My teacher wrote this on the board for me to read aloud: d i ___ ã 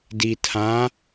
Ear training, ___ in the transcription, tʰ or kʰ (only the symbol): tʰ